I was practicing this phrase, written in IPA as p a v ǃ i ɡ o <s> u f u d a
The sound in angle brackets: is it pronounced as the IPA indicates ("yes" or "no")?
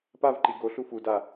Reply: no